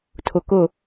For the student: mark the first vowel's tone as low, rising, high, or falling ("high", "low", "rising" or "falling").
low